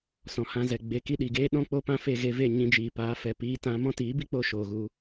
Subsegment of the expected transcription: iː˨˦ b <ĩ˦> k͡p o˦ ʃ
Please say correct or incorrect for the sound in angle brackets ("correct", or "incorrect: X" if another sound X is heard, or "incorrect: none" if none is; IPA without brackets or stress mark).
incorrect: i˦